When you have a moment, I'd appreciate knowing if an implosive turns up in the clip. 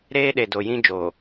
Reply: yes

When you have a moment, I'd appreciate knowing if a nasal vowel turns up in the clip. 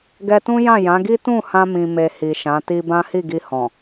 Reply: yes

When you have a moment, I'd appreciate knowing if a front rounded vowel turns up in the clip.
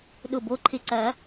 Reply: no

